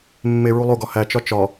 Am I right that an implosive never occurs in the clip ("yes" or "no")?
yes